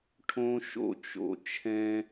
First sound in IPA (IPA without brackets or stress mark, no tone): ʈʰ